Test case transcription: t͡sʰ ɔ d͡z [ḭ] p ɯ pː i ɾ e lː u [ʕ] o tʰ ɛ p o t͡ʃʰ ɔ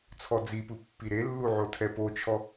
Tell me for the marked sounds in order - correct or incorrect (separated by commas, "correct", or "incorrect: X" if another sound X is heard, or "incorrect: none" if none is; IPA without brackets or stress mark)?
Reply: incorrect: i, correct